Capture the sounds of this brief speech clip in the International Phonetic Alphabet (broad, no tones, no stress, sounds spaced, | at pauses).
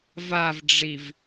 v a v ɖ͡ʐ i v